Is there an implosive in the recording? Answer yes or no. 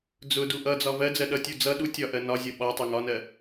yes